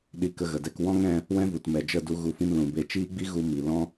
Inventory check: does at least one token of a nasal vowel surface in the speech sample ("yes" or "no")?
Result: yes